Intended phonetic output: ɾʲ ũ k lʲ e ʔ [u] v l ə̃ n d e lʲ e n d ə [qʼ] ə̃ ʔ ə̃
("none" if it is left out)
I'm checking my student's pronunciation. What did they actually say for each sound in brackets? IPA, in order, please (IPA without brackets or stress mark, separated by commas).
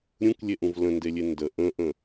ũ, ʔ